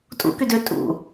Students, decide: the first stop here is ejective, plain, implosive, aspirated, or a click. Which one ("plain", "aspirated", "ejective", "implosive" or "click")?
ejective